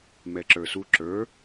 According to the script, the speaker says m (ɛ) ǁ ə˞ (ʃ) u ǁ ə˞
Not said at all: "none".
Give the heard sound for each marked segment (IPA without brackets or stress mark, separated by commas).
ɛ, s